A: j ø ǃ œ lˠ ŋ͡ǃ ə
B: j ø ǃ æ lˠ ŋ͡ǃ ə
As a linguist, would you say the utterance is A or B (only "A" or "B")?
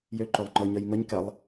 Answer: A